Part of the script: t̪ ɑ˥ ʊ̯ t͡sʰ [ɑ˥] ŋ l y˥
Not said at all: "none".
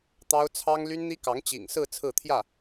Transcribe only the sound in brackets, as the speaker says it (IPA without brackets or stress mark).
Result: ɑ˥